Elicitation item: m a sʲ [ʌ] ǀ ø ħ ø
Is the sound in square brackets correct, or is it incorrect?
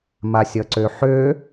correct